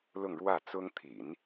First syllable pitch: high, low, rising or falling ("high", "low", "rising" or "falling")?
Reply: falling